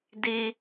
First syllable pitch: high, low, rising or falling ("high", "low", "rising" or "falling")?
high